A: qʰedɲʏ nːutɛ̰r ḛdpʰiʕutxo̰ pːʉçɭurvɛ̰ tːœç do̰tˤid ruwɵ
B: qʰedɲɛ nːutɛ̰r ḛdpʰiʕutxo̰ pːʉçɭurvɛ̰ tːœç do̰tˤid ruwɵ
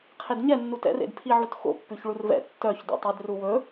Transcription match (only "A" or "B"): B